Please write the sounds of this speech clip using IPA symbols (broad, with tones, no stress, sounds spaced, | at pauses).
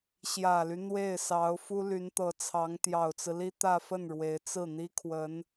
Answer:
ɕ j ä˨˩ l y˦ n̪ w e˥˩ ɪ̯ s ɑ˧˥ ʊ̯ f u˥ l y˧˥ n t̪ ɤ˧˥ t͡sʰ ɑ˧˥ ŋ t̪ j ɑ˨˩ ʊ̯ t͡s ɹ̩˦ l i˥ t̪ ä˥˧ f ə˥˩ n ɻ w e˧˥ ɪ̯ t͡s ɹ̩˥˩ n̪ i˥ kʰ w ə˧˥ n